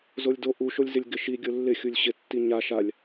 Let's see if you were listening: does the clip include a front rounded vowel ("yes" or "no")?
no